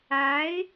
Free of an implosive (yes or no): yes